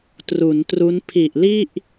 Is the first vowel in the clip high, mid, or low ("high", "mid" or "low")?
high